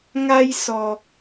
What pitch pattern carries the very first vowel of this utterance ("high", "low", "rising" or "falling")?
high